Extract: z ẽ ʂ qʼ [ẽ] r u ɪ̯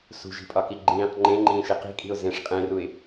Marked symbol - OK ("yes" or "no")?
yes